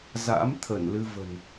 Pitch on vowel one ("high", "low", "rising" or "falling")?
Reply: rising